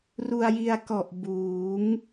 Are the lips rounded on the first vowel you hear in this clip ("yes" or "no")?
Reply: yes